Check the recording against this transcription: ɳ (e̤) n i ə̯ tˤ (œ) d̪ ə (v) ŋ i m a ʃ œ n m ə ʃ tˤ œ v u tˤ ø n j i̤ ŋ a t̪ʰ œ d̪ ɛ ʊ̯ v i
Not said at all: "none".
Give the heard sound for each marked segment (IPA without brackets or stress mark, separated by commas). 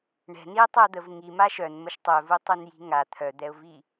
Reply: ɛ̤, œ, v